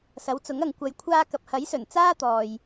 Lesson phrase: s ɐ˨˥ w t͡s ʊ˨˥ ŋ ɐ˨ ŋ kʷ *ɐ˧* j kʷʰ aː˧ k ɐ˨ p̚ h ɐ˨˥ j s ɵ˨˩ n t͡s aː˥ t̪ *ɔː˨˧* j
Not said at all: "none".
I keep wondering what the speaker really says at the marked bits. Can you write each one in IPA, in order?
ɐ˨, ɔː˨

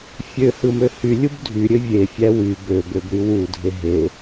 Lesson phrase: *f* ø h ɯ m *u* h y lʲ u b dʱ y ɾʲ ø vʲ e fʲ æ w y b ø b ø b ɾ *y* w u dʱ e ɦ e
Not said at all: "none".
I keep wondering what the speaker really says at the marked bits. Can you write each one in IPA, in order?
fʲ, ø, y

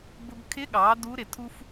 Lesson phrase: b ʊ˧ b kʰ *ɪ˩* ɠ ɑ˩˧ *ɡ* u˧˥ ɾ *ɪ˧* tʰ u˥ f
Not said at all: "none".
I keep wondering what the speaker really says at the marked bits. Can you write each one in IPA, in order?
ɪ˧˥, d, ɪ˩

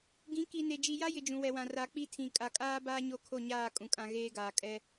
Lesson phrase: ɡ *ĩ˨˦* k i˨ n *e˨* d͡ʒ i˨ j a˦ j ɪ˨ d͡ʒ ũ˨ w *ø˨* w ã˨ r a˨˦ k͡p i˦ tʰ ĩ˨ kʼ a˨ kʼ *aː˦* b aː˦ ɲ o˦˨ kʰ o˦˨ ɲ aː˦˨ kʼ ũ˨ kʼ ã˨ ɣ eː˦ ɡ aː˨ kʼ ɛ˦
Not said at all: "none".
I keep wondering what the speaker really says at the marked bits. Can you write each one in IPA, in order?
ĩ˨˦, e˨, ɛ˨, aː˦

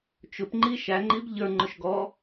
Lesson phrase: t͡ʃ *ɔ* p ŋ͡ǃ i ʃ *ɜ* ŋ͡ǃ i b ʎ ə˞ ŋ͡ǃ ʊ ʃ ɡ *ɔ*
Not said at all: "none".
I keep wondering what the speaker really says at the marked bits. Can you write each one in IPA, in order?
ʊ, æ, ɔ

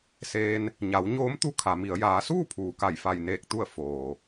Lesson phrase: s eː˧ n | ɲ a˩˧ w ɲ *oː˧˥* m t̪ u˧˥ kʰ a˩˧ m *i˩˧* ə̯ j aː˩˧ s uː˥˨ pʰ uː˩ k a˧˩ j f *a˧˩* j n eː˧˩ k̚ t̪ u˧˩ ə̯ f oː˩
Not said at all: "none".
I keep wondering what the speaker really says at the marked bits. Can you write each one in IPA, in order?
oː˧˥, i˩˧, a˧˩

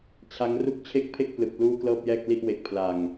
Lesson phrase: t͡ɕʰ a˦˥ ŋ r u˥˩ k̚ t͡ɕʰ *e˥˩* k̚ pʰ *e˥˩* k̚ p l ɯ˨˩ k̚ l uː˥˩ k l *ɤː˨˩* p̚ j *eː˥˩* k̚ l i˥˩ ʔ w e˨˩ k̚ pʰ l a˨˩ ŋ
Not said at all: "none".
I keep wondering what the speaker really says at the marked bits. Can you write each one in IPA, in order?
e˥˩, e˥˩, ɤː˥˩, ɛː˥˩

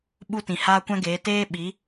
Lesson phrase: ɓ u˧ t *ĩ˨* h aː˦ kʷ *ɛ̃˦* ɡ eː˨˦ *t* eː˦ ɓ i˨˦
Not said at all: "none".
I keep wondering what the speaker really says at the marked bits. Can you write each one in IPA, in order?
ĩ˨, ɛ̃˦, t

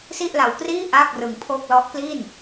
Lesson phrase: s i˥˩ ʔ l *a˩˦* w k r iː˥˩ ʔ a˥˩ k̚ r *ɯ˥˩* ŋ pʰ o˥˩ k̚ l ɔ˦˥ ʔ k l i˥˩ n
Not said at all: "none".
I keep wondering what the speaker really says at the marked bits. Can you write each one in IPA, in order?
a˧, ɯ˧

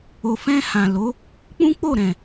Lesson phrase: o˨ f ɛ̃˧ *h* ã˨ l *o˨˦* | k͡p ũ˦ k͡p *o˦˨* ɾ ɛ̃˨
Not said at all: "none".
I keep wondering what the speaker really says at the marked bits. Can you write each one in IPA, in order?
h, o˨˦, o˦˨

